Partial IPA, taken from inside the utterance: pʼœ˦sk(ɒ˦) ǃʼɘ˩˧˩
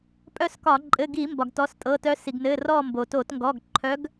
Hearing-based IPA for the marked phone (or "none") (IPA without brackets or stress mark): ɒ˧˩˧